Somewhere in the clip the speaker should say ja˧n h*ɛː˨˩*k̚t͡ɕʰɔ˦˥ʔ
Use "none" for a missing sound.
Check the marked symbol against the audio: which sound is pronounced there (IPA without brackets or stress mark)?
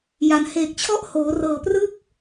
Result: eː˨˩